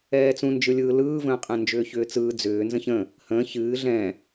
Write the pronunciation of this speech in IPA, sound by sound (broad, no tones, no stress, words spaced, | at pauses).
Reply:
ɛːt͡sũnd͡ʒɯlʲɯː lɯːvə̃ːqʼɛ̃ nd͡ʒʏːçʏːt͡sɯː d͡zʏː nzə̃çə̃ | hə̃ː çɨː ɮɛ̃